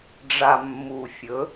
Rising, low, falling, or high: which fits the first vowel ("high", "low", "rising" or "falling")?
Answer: low